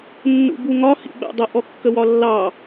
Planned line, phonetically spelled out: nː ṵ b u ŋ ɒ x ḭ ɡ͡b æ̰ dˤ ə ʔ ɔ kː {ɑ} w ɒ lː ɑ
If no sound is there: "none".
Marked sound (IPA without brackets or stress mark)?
ə